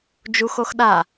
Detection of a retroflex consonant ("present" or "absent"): absent